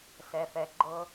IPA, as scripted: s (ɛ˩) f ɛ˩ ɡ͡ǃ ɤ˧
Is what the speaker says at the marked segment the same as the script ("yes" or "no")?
yes